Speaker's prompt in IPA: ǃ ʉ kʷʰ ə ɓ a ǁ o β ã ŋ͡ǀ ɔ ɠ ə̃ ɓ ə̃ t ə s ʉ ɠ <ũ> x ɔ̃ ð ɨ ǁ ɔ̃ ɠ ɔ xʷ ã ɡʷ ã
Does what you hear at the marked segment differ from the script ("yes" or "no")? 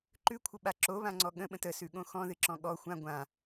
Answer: yes